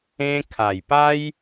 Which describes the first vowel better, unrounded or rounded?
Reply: unrounded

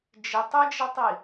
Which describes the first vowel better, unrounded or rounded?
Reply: unrounded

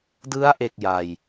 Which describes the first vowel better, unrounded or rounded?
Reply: unrounded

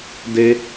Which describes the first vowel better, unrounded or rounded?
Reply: unrounded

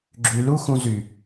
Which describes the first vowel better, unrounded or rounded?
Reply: rounded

